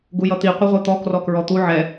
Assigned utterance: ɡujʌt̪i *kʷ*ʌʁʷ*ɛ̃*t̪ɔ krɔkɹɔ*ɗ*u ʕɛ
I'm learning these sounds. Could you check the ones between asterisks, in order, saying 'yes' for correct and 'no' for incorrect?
no, no, no

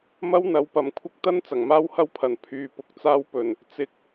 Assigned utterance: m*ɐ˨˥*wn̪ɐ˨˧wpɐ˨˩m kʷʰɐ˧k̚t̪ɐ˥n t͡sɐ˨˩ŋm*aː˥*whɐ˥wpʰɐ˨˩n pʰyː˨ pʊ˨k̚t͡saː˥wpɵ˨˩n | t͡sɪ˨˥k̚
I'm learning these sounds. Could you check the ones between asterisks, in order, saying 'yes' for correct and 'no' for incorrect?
no, yes

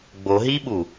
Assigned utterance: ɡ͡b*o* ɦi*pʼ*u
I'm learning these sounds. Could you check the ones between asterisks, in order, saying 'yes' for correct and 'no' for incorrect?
yes, no

